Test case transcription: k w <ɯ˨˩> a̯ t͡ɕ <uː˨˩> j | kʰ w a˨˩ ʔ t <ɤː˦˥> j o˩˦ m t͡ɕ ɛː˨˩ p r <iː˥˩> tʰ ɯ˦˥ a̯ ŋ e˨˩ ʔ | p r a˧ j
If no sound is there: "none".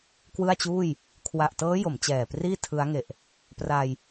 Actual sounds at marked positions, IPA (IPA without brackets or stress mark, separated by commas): ɯ˥˩, uː˥˩, ɤː˦˥, iː˥˩